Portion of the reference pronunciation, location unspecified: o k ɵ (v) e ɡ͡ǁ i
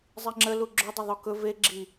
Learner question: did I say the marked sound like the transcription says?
yes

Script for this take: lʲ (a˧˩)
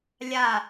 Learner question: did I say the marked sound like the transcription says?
yes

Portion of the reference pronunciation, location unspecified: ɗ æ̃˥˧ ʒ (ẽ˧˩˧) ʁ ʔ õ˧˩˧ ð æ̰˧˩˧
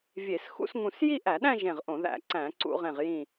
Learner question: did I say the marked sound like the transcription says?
no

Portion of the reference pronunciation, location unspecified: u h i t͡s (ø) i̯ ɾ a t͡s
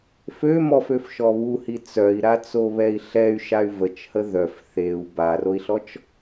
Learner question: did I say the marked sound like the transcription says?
no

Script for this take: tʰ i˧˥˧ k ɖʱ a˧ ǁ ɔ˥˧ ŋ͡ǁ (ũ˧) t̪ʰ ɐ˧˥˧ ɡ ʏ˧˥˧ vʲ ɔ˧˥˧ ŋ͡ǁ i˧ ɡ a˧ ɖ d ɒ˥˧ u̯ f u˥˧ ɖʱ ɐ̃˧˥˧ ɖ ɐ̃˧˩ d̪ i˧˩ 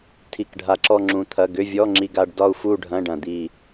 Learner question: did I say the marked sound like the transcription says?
yes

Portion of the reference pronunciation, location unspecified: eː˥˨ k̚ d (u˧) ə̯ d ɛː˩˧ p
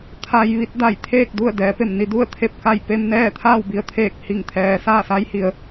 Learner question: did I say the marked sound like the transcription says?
no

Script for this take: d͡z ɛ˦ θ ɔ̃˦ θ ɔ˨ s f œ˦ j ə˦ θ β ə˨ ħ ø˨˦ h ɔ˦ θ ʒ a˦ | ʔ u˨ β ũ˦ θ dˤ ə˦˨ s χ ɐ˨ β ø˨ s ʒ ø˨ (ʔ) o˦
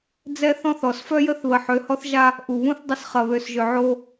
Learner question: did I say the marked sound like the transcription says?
no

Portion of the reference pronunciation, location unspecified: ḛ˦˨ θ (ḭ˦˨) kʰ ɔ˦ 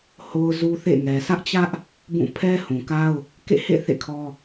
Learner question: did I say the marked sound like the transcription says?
no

